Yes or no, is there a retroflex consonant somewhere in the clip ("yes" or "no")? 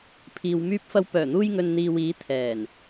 no